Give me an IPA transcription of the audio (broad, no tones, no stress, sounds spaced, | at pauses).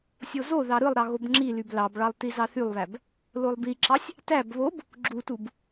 sʲ o z o ð ɑ ɾ ɯ lˠ ɾ ɑ ɣ o b ŋ͡ǁ i l y b l ɑ b ɭ ɑ lˠ t i z ɑ θ y lˠ β æ b | l o lˠ b i ǁ ɑ sʲ | t æ b β o b | ɡ͡ǁ u t u b